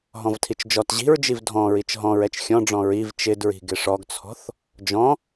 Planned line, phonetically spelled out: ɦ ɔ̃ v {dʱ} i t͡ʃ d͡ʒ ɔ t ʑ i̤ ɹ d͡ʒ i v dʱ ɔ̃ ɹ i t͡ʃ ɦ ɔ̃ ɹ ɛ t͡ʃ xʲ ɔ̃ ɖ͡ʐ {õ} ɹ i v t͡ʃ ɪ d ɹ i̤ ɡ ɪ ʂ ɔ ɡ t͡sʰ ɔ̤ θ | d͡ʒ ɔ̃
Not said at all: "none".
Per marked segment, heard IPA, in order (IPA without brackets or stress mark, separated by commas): tʰ, ɔ̃